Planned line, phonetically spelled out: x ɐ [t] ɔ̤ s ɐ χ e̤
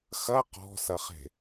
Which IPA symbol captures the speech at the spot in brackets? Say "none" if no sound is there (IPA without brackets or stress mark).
q